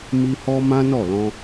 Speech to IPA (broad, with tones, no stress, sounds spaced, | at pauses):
m i˧ h ɔ˧ m ã˦ n ɔ˦˨ l ɔ̃˧